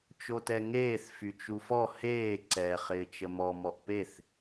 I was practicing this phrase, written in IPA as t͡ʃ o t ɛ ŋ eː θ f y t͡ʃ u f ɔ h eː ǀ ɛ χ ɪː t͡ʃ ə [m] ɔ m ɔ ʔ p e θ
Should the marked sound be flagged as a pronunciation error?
no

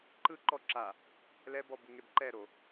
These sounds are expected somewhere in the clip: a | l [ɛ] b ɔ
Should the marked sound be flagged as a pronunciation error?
no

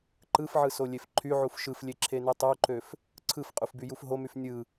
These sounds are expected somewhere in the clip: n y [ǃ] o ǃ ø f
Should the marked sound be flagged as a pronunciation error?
yes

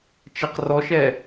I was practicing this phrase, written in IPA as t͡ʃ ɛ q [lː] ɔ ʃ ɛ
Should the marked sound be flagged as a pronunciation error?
yes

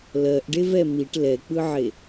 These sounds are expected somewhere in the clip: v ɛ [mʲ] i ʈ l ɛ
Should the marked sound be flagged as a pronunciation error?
yes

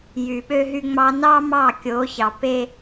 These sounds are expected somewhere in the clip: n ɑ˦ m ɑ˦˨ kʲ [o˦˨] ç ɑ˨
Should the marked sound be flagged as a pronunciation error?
yes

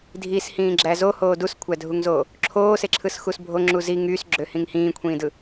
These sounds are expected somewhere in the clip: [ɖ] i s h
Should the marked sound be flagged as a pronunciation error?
yes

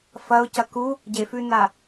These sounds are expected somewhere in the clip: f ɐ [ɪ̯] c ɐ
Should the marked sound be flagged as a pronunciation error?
yes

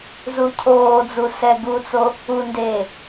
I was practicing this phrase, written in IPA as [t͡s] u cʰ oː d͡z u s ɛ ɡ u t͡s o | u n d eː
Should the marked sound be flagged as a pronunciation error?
yes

